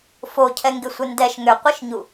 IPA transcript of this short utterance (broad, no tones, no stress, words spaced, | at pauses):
focʰɛŋɡɪsʷɪ ndɛʃ ŋʏqʷiʃɲu